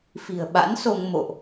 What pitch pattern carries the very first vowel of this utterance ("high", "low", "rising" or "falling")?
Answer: low